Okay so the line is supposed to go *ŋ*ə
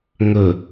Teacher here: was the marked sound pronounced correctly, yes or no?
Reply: yes